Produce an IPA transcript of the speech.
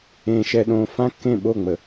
ẽː˨ ʃ ɛ˨ ɗ õː˨ f ã˦ kː ẽ˦˨ ɓ o˦˨ ŋ͡m ə˨

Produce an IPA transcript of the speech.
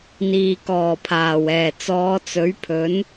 n̪ iː˨ k ɔː˨˩ pʰ aː˨˩ w ɛː˨˩ t͡s ɔː˨˧ t͡s ɵ˨˥ ɥ pʰ ɵ˨˥ n

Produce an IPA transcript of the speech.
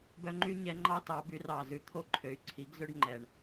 b œ˧˥ ŋ͡ǃ y˥ ɲ ɛ˧˥ ŋ͡ǃ ɑ˥ t ɑ˩˥ b y˩˥ r ɑ˨˩ z ʉ˩˥ t̪ʰ o˧˥ ǃʰ ø˩˥ y̯ ǀʰ i˩˥ ɡ z ø˥ ɖ ŋ͡ǃ ɛ˨˩ ɳ

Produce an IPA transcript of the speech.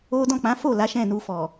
o˦ d ɔ̃˦˨ k͡p ã˨˦ f o˦˨ l a˨˦ ʃ ɛ̃˦˨ n u˧ f ɔ˨

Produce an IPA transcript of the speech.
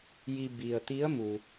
j i˧ b i˩ ə̯ t̪ i˧˥ ə̯ m u˩

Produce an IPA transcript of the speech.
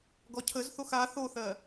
ɡ ɔ cʰ ə z θ o x a θ o θ ɜ

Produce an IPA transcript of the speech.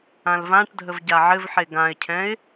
ã l v ã ʈ dʱ ə v ɟ a ʕ ɘ v ħ e ɡ ã ɪ̯ cʰ ɛ̃ ɪ̯

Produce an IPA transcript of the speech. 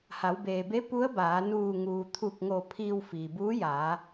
h a˩˧ w b eː˩ b e˧˥ p u˧˥ ə̯ b aː˩˧ n uː˧˩ ŋ uː˩ t̪ʰ u˧˩ k̚ ŋ o˧˩ pʰ iː˧ w f iː˩ b uː˧˥ j aː˩˧

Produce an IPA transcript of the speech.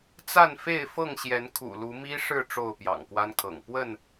t͡s a˥˨ n f e˥˨ ɪ̯ f ɤ˥˨ ŋ ɕ j ɛ˨˦ n kʰ ṵ˨˩ l u˨˦ m i˦ ʂ ɻ̩˥˨ ʈ͡ʂ o˥˨ ʊ̯ p j ɑ̰˨˩ ŋ k w a˦ n kʰ ɤ̰˨˩ ŋ p w ə˥˨ n

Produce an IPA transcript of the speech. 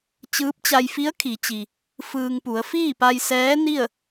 t͡ɕ ɯː˧˥ p̚ t͡ɕ a˧ j f i˧˥ ə̯ kʰ i˩˧ t͡ɕ i˩ | f ɯː˧ ŋ p u˩˧ ə̯ f iː˥˨ p a˧ j s ɛː˧˥ n i˥˨ ə̯

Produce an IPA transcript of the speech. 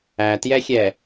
æ t j ɛ xʲ ɛ

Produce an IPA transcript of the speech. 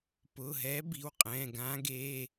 p ʊː˩˧˩ ɦ ɛː˧˥ b i˩˧˩ w qʼ ɛ̃ː˩˧˩ ɡ ãː˧˥ ɡ eː˩˧˩

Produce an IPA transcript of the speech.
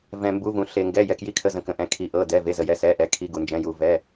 v ɛ̃˩ m b u˩˧˩ v ũ˩ ɬ e˩ ŋ ɡ ɛ˩˧˩ j ɛ˩ k j i˩˧˩ kʰ ə˩˧˩ z ə̃˩ k ə̃˩ ʔ ɛ̃˩˧˩ kʰ i˩˧˩ ʔ ɤ˩˧˩ d ɛ˩˧˩ v e˩˧˩ z ə˩ j ɛ˩˧˩ s ɛ˩˧˩ ʔ ɛ˩˧˩ kʰ i˩˧˩ ɡ u˩ n d͡ʒ ɛ̃˩˧˩ j u˩ v ɛ˩˧˩

